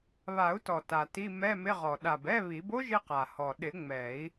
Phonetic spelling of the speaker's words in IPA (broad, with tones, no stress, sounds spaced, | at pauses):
β a˨˩˦ u̯ t ɔ˨˩ t a˨˩ t i˧˥˧ m ɛ˧˥˧ m ɪ˧˥˧ ʁ ɔ˨˩ ɗ a˨˩ b ɛ˧˥˧ β i˨˩˦ b o˥ ʒ ɪ˥ q a˨˩ h ɔ˨˩ ɗ ɪ˨˩˦ ŋ͡m ɛ˨˩˦ i̯